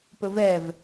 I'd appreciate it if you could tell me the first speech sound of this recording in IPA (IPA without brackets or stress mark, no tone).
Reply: p